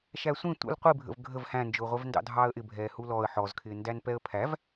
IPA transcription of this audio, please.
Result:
ʃ æ sʷ ĩ tʷ ə̰ l qʷ i bʱ ə̰ v ɡʱ ə v h æ̃ n d͡ʒ ʊː ʁʷ ɛ v n d ɑ̰ dʱ ɑː ə̯ ʔ ɪ bʱ ɛː h u l ɔ ə̯ ħ ɔ z kʰ ɪː n d æ n p ɛ ə̯ pʰ æ v

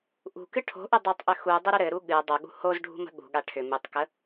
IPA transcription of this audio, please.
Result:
ʔ ṳ k ɨ ʈʰ o̤ ʔ ʏ dˤ ɘ tˤ ʔ ʏ x u dˤ ɘ ɾ ʏ ɾ ɘ ɾ u ɠ ɨ dˤ o ɠ ṳ h o z ɖʱ ṳ m ə̤ ɠ ṳ ɠ a ʈʰ ʏ m ɨ tˤ k ə

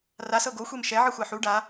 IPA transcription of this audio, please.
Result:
r a s ɤ ɡ o xʷ e m ʃ ɛ ʕ ɯ xʷ a ħ u ɖ a

